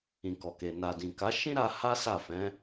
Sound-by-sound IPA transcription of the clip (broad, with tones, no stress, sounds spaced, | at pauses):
ĩ˨ k ɔ˨ k e˨ n a˨ d ĩ˨ k a˨˦ ʃ ĩ˦ ɾ a˧ h a˦ s a˦˨ f ɛ̃˨˦